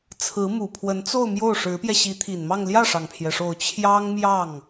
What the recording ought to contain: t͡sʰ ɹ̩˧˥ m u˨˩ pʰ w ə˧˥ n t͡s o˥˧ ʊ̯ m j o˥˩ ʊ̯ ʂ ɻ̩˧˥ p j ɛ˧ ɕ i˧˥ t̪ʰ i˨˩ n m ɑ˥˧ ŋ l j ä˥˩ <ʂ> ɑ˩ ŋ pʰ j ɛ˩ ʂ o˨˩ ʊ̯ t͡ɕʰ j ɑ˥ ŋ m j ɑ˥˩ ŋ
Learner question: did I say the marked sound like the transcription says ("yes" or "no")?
yes